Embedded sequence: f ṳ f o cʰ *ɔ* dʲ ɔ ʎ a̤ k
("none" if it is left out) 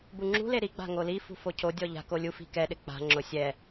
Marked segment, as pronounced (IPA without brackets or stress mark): o